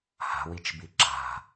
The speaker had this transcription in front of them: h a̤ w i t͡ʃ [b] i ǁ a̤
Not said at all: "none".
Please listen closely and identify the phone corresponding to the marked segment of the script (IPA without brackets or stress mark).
b